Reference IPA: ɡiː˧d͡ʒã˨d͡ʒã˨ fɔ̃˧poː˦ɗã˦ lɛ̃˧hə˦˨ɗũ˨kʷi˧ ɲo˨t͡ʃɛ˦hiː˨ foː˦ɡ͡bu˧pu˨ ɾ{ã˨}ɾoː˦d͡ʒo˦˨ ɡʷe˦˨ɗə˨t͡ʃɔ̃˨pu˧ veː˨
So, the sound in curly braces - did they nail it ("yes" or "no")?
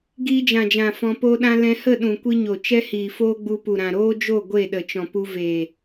yes